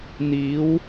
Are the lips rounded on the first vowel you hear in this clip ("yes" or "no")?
no